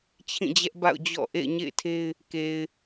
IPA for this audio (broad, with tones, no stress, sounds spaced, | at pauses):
t͡ɕʰ ĩ˦˨ d͡ʑ ɛ˦ ʔ b a̰˦˨ ʊ̯ d͡ʑ ɔ̰˦˨ ʔ ḛ˦˨ ɪ̯ ɲ ḛ˦˨ ɪ̯ tʰ e˦ ɪ̯ | k e˨ ɪ̯